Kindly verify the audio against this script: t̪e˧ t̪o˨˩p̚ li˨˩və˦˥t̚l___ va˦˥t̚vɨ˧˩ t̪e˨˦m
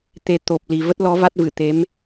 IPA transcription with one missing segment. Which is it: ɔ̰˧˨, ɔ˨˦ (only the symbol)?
ɔ˨˦